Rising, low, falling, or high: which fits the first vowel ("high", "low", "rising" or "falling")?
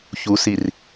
rising